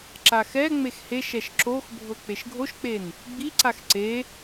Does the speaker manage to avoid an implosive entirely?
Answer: yes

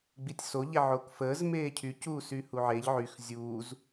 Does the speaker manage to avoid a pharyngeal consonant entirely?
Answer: no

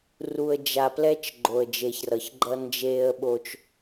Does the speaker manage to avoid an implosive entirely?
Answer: no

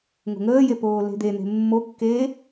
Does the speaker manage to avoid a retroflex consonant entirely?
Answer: yes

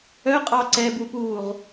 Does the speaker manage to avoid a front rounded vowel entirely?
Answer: no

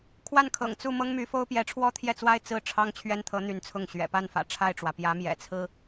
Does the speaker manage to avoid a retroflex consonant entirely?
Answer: no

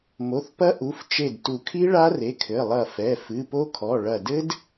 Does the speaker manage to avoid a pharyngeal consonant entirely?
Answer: yes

